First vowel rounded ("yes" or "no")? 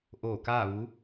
yes